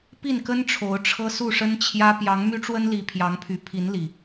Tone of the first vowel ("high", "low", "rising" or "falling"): falling